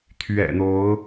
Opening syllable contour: low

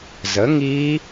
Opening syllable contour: rising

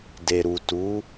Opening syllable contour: low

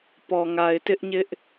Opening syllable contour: low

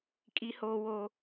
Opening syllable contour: high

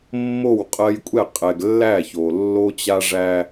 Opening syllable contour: falling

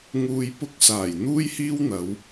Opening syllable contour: low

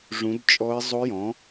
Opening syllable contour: rising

